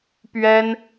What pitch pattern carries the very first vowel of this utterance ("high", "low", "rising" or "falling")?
high